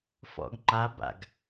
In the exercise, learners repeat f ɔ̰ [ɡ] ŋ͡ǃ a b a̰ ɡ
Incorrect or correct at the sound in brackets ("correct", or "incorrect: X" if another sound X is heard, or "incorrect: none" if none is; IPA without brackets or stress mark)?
correct